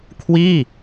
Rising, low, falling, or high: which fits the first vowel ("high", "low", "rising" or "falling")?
falling